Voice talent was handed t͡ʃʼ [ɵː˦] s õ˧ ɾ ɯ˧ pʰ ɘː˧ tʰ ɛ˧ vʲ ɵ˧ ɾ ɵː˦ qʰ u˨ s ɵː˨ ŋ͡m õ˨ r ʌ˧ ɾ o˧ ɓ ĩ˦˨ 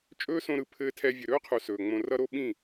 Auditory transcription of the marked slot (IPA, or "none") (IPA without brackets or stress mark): ɵː˦